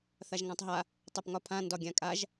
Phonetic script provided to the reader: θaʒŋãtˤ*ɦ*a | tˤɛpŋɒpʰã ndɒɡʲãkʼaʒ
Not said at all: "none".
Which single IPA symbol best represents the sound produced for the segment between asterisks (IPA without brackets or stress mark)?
ɦ